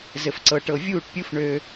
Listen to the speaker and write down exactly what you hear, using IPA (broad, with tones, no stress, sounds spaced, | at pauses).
z ɘ˨ f ǀ ɤ˨ ʈ ɤ˨ vʲ uː˦˨ ʈ pʲ u˦ f ɳ ø˦